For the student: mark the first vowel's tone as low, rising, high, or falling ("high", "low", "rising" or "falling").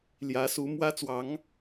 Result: rising